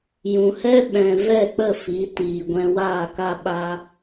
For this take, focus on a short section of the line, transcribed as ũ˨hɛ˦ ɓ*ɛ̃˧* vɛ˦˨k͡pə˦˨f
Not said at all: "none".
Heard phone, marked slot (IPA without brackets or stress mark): ɛ̃˨